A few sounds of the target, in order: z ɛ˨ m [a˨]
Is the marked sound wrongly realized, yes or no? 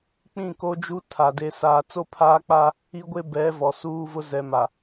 no